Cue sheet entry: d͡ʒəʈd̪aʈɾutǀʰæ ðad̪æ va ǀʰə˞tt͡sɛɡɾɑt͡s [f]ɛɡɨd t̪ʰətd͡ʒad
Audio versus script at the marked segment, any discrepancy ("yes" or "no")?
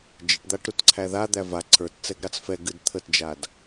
no